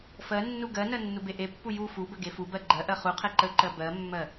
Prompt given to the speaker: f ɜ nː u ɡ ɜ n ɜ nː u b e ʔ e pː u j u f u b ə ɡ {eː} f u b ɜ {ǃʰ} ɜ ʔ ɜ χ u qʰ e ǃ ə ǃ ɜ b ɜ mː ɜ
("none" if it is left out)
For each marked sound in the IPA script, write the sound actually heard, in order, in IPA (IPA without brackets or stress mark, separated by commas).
e, ɡ͡ǃ